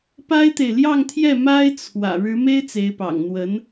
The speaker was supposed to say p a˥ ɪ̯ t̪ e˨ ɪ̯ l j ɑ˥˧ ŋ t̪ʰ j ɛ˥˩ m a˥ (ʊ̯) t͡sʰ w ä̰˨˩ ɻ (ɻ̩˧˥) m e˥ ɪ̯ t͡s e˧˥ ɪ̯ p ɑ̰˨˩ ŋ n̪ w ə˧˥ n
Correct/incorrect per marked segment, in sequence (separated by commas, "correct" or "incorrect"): incorrect, correct